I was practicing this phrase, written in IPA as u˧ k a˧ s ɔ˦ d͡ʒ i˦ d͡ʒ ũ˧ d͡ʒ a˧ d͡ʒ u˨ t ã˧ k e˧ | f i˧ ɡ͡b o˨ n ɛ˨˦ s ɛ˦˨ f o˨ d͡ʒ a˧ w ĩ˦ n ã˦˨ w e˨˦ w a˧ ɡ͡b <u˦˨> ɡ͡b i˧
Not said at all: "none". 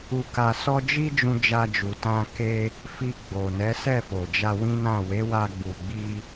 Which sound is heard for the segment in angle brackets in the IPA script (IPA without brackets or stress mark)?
u˨